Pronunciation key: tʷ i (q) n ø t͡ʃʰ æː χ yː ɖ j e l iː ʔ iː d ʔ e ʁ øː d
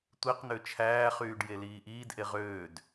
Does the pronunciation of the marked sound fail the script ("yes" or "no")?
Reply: no